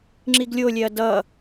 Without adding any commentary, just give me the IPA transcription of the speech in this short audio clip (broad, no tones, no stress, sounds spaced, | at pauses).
ŋ͡ǁ i ɡ lʲ o lʲ ɛ ɐ̯ d ʌ